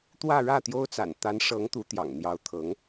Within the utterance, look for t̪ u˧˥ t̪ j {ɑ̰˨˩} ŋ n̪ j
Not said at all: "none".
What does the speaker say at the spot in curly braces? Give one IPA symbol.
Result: ɑ̰˨˩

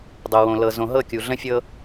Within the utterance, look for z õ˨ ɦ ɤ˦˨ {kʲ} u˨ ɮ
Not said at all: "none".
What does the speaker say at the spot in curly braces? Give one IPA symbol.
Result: kʲ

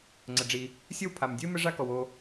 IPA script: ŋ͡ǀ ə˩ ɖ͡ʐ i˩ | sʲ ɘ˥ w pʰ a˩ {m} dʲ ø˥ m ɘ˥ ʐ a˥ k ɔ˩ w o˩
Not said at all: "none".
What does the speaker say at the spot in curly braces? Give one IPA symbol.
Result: m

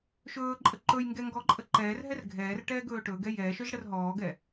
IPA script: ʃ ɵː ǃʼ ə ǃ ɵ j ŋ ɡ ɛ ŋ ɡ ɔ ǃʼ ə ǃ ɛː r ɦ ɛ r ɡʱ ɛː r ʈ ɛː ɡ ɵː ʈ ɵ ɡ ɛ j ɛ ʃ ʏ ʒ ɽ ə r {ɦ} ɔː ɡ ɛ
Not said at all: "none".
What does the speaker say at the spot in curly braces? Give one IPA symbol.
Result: ɦ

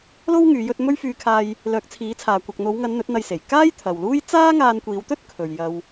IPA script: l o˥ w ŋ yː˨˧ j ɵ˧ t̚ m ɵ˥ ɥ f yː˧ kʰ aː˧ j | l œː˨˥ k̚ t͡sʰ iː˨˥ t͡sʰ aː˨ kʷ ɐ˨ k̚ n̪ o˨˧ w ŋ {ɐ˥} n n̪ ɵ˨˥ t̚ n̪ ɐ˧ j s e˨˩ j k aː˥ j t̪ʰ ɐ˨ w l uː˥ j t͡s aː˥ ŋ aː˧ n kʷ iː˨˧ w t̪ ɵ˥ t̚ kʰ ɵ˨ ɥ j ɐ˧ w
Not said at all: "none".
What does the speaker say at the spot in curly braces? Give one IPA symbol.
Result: ɐ˨˧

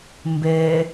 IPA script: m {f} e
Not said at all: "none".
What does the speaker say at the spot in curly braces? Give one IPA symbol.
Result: b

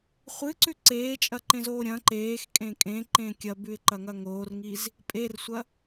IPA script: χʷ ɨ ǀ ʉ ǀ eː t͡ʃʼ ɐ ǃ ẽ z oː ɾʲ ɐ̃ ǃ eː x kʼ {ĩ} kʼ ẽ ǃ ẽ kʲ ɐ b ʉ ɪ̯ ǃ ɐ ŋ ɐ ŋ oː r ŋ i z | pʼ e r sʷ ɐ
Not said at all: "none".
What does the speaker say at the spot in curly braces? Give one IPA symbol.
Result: ẽ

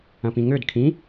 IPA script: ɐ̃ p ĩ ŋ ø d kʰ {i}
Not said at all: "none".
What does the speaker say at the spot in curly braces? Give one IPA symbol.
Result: ĩ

